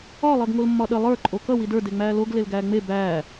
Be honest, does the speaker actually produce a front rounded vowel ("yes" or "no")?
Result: no